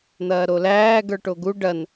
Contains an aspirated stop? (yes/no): no